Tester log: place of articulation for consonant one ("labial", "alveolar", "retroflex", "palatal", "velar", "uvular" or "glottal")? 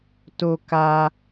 alveolar